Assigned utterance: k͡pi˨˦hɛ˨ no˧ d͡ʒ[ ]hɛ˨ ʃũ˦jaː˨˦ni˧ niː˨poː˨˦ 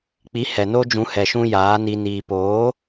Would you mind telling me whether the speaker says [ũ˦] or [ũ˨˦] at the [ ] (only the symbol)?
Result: ũ˨˦